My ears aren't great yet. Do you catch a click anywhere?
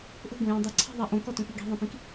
yes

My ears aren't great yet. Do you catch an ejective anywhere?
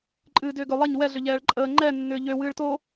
yes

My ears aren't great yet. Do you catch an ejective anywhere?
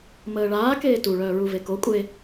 yes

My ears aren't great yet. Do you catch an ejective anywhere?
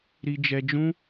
no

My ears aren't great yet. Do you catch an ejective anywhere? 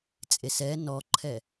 yes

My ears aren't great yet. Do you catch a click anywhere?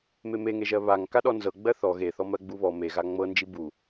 no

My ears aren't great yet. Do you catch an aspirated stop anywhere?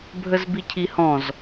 yes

